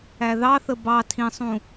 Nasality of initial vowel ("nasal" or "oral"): oral